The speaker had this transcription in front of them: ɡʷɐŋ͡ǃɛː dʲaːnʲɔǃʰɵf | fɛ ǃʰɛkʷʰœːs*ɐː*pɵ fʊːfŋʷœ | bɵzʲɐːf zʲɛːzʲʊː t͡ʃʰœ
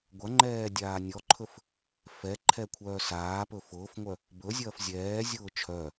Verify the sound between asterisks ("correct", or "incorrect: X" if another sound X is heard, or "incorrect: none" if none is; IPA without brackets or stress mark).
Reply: incorrect: aː